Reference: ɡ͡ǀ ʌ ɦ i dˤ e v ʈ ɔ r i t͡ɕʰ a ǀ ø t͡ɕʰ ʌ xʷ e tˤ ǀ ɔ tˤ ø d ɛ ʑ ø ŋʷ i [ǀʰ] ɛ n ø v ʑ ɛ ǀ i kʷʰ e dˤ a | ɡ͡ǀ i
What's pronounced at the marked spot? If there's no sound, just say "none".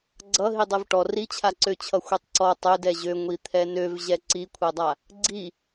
t̪ʰ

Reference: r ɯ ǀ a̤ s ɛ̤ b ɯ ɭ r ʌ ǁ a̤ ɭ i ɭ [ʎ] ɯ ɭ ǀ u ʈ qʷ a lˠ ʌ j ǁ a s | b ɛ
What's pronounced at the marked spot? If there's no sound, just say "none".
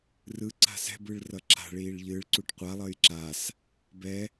ʎ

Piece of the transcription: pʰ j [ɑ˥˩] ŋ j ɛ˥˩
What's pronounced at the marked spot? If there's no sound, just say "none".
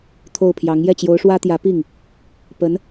ɑ˧˥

